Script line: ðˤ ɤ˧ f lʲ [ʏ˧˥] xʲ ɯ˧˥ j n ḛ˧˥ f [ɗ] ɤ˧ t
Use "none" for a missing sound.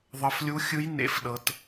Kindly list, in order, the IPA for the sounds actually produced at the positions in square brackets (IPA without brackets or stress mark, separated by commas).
u˧˥, ɗ